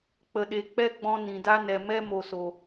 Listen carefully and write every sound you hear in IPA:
k͡pə˨ɗe˨ k͡pɛ˦ɡ͡bɔ̃˧ nĩ˨da˦ nɛ˨ mɛ˦mo˨so˨

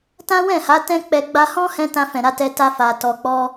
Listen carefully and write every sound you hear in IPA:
tã˦wɛ̃˦˨ha˨˦ tɛ̃˦k͡pɛ˧ ɡ͡ba˧hɔ̃˦hɛ̃˧ tã˧fɛ̃˨ɾa˨˦ tɛ˧ta˧fa˨ tɔ˨k͡pɔ˧

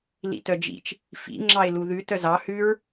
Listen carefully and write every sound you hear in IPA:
lḭtœd͡ʒḭt͡ʃ | fḭ ŋ͡ǁɑɪ̯luðʉ tœzɑ hʉɹ

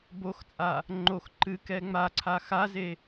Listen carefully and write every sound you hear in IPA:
boxt͡sʼa | ŋ͡ǃox ǃɨkɛ ŋ͡maǀʰa xaze

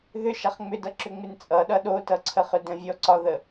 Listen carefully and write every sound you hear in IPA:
ðʏ ʃaχŋ͡mʏdʌ ǁʏŋ͡mɪnt͡sʼʌɗʌ ɗotʌǀʰəχʏ də̃vʲɔǀɒðə

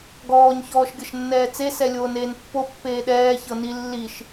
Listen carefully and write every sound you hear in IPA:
ɡɔːɲ çɔːʃɡʲɤʃnːɛːt͡se sɛlʲoːneːnpːo pːeːɗɛː çɤni lːiʃ

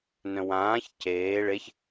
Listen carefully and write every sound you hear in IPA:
nœ̃wãːç ceː ɭeç

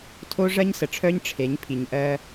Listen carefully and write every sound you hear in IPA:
tʰo˦ʐɜ˦ɲsə˨ʈ͡ʂʰœ˦ɲ ʈ͡ʂʰe˨˦ɲpʰi˨ɲ ʔɜ˦

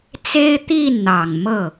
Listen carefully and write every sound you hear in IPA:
t͡se˥ɪ̯t̪i˥˩n n̪ɑ˨˩ŋmɤ˥˩

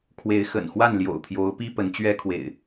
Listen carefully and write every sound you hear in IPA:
kʰwe˨˦ɪ̯xə̰˨˩nxwa˥˨n ljo̰˨˩ʊ̯pʰjo˨˦ʊ̯pi˦ pə˨˦nt͡ɕɥɛ˦kʰwḛ˨˩ɪ̯

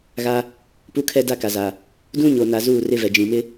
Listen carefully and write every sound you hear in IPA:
ɣa˦ | pu˦kʰɛ˦ da˦ka˨za˨ | dũ˦ɲo˨na˨ zuː˦˨rɪ˦vɛ˨ d͡ʒĩ˨mɪ˦

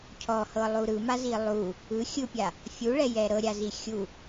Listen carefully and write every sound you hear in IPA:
cʰɔhɤlˠu ɾɯmazi lˠu | ɯ xʲɯpʲa | fʲuɭɛjɛ ɾɤɾʲazi xʲu

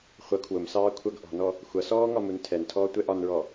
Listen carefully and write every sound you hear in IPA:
χʷʌ kʰwʊmsɑː kʷʰʌɡ ʔɔ̤nɔ | xʷʌsɔː ŋɒmuntʰɛntʰɔː tʷɛʔɒnɹɔ

